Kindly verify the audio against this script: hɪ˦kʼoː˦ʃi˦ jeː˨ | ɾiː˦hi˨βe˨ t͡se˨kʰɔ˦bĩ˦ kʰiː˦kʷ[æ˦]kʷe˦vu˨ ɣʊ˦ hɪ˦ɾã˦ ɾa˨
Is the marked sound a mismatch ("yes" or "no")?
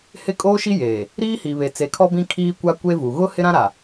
yes